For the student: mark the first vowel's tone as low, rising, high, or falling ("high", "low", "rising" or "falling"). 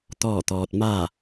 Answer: falling